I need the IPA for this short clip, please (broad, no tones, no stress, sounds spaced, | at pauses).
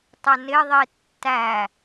tˤ ʊ n ɪ ðˤ i tː æ